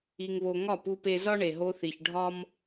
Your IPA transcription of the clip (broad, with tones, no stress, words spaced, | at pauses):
i˧ŋβo˧ ŋɒ˦˨pu˧pe˧ zɒ˦ɳe˨ɦo˧θi˨ç ɖʱɒ˦m